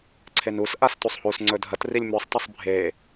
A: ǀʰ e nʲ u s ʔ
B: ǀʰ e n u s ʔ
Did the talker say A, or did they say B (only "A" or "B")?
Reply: B